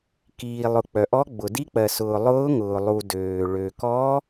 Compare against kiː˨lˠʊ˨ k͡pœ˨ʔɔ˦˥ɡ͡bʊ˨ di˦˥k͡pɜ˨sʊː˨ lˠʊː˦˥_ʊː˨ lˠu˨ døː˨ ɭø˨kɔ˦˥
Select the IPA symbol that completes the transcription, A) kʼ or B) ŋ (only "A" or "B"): B